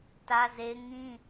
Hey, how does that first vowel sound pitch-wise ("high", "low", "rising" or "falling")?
high